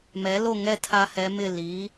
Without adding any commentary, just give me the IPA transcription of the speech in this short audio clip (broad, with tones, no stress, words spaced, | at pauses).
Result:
mɛ˩˥lo˥˨ŋɛ˥˨ tʰa˥hɛ˧˥mɪ˥˨ liː˩˥